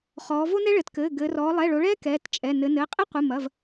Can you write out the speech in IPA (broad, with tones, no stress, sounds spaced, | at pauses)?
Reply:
χ ɔː˩˧ v o˦ n ɛ˦ ɭ ɘ˩˧ t k ɘː˩˧˩ ɡ ɘː˩˧ r ɔː˩˧ lˠ ɛ˩˧˩ ɭ o˩˧ ɭ ɛː˦ k ɛː˩˧˩ t t͡ʃʼ ɛ˩˧˩ n ɘ˩˧ n ɘː˩˧˩ qʼ i˦ qʷ ɨ˩˧˩ m ɐ˩˧˩ v